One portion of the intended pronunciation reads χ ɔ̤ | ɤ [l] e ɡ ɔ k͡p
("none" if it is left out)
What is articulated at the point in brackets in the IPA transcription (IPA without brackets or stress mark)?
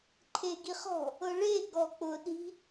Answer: ɭ